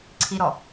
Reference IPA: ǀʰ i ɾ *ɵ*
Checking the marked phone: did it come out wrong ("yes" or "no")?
yes